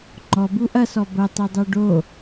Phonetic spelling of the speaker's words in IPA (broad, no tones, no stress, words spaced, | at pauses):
ŋ͡ǃɔbu ʔɐsɔ bɐtˤidˤo ɖo